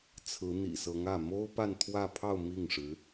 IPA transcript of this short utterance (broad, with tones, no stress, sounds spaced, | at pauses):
t͡sʰ ɹ̩˧˥ n̪ ḭ˨˩ s ɤ˧˥ ŋ ä˥˩ m o˥ ʊ̯ p a˥˧ n t̪ʰ w ä˥˧ pʰ ɑ˥˧ ʊ̯ m i˥˩ ŋ ʂ ɻ̩˧˥